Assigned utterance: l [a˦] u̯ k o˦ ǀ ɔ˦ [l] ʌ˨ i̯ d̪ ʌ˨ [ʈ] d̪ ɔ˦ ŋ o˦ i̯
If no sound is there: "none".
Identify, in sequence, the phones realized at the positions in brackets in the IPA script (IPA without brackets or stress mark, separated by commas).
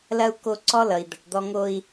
ɐ˦, l, ʈ